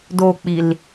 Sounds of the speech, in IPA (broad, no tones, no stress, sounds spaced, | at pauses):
d o k͡p i l